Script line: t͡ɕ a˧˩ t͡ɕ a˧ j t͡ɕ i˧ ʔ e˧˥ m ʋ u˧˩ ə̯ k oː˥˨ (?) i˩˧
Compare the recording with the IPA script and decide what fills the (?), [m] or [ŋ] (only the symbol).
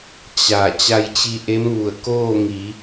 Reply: ŋ